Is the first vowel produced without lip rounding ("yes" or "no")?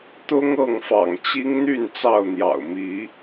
no